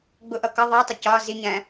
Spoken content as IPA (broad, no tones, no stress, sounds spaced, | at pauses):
ɡ͡b ʊ ʔ ʌ k ʌ ðˤ ɜ tˤ ɪ c ɒ z i ɲ æ̃